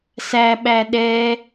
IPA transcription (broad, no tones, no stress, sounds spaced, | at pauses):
s æ ɓ æ ɗ ɛ